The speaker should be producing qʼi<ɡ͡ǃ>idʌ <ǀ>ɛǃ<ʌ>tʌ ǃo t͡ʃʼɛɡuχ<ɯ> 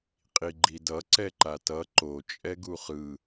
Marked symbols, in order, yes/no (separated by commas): yes, yes, no, yes